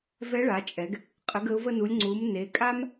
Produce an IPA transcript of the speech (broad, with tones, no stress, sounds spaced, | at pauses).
v ɛ˧˥ ɭ a˩˧ t͡ʃʼ ɛ˩˧ ɡ | qʼ ə˩˧ ɡ ə˩˧ ʊ̯ v ə˧ n u˩˧ lʲ ŋ͡ǀ u˩˧ m n e˩˧ kʼ a˥ m